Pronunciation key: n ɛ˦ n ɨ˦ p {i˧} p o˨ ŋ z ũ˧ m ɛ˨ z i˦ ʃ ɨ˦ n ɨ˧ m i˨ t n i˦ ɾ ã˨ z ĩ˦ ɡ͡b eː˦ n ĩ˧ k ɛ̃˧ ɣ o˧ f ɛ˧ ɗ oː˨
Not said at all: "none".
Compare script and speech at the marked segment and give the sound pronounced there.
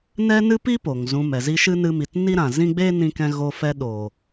i˦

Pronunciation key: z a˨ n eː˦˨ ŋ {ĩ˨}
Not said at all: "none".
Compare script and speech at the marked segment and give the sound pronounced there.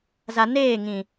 ĩ˨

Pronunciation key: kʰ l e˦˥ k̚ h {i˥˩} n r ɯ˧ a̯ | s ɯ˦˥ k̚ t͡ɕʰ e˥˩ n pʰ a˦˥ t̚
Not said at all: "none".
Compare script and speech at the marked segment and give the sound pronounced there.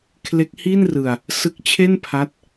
i˥˩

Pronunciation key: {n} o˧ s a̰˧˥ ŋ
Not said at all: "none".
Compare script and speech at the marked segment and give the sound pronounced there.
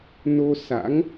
n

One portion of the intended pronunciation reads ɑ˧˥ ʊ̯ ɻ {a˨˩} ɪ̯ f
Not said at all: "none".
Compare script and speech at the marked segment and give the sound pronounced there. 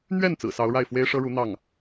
a˥˩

